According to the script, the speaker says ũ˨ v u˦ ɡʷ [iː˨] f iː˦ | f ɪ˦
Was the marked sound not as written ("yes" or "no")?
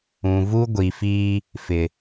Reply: yes